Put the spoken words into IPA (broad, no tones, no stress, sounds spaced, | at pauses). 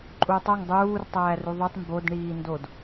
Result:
ǃʼ u tˤ o ŋ dˤ uː r tˤ æː r u ðˤ o tˤ m b o d ɳ iː n d o d